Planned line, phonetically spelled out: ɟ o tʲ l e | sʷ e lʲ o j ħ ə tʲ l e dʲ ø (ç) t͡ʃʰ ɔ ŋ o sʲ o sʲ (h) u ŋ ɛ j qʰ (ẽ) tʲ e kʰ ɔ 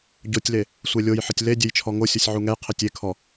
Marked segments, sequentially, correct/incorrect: incorrect, incorrect, incorrect

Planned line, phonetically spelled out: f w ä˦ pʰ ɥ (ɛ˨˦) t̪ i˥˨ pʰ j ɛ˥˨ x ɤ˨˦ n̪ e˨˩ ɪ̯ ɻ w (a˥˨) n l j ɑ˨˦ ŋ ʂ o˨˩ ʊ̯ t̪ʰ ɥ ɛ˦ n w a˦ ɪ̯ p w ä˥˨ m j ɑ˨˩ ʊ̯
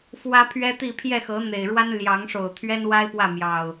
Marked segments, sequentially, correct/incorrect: incorrect, incorrect

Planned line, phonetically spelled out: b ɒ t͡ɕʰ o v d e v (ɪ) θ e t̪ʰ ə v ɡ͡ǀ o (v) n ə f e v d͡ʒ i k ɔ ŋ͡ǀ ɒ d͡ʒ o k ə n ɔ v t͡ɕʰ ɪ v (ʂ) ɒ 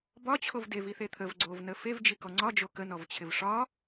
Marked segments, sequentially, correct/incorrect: incorrect, correct, correct

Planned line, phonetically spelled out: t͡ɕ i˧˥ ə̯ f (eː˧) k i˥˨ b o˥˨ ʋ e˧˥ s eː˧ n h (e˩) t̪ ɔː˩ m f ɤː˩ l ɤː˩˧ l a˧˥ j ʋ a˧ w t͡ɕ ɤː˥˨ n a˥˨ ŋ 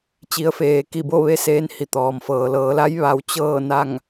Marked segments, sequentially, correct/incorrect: correct, incorrect

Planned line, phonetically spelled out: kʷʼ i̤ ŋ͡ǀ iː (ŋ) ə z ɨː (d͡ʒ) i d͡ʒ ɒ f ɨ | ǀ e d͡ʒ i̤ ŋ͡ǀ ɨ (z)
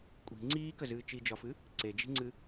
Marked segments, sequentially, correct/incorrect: incorrect, incorrect, incorrect

